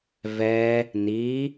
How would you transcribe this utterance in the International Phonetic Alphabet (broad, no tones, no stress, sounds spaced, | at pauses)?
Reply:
v ɛ | n i